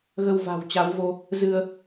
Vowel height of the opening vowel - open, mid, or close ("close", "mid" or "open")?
mid